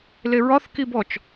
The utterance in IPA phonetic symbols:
l e ɹ ɒ θ k i b ɔ t͡ʃ

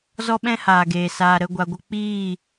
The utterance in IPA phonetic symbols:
z ɔ˦ ɓ ɛ̃˦ h aː˨ ɡ eː˨ s aː˨ ɾ ə˦˨ ɡʷ a˧ ɡʷ ə˦ k͡p iː˦˨

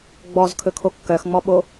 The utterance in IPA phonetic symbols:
ɡ͡b ɔ z kʰ ɵ kʰ o kː œ x ŋ͡m ɔ ɓ o

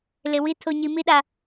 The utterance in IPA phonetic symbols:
l ɪ˨ w i˦ tʰ o˨ ɲ i˨ m i˦ ɗ a˨

